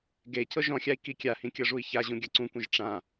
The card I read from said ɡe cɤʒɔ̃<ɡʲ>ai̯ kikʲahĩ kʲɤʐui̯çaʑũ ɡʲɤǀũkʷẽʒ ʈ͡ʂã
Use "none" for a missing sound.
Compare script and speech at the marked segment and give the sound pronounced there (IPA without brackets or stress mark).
xʲ